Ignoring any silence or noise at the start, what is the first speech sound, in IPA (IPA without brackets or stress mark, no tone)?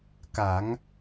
k